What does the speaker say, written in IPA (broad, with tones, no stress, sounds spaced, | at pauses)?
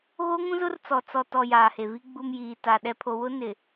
ɣ o˦ ŋ ũ˦ z ʊ˦ r t͡s ɔ˨ t͡s ɔ˨ t ɔ˨ j aː˨ h e˨ v i˦ ɡ͡b u˨ m j iː˨ t a˨ ɗ ɛ˨ pʰ o˨ w ʊ˦ n ɪ˨